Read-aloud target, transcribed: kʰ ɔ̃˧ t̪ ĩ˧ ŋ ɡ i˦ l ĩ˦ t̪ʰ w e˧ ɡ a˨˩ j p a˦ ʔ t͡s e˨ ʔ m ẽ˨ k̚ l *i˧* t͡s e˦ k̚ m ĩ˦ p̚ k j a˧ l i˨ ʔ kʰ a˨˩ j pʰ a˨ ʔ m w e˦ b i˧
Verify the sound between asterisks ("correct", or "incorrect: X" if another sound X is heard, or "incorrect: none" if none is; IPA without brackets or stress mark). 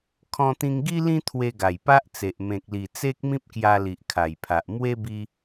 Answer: incorrect: i˨˩